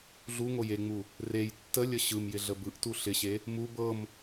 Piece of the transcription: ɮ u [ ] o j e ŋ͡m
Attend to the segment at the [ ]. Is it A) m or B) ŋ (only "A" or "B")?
B